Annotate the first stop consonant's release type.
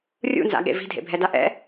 implosive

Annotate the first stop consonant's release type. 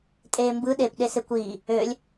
ejective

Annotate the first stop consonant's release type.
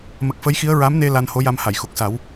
plain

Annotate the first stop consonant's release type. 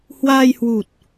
plain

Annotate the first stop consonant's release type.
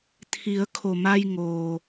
aspirated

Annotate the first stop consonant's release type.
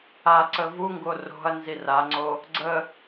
click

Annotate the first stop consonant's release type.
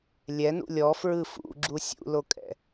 click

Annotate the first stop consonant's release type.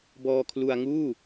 plain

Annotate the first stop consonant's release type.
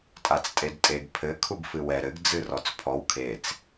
ejective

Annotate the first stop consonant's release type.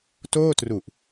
plain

